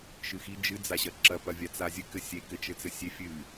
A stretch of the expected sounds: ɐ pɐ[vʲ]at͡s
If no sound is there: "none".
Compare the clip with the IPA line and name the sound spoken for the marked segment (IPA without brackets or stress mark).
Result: vʲ